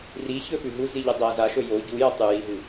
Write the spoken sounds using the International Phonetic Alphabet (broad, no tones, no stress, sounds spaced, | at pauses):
r i ç ɵ f ʉ ɦ u z i ʎ ɨ dˤ ɐ z a ʃ ɵ j o ɟ u j ɐ tˤ ʉ j i ɦ ɨ